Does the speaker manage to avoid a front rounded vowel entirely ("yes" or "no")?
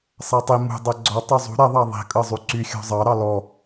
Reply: no